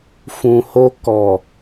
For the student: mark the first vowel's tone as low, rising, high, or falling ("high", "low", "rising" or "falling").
low